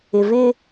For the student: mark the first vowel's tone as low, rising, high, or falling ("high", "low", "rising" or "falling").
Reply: low